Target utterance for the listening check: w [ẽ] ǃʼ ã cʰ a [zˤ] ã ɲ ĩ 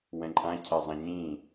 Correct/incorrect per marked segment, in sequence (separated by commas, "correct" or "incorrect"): incorrect, correct